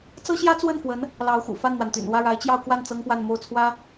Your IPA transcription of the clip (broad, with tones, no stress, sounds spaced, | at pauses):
t͡s ɤ˥ ɕ j ä˥ t͡s w ə˥˩ n f w ə˧˥ n | l ɑ˧˥ ʊ̯ x ṵ˨˩ f a˥˩ n n̪ w a˩ n t̪ y̰˨˩ n w ä˥˩ ɻ a˧˥ ɪ̯ t͡ɕ j ɑ˥˧ ʊ̯ k w a˥˩ n t͡s ɤ˥ ŋ p w a˥˧ n m o˥˩ ʊ̯ t͡sʰ w ä˥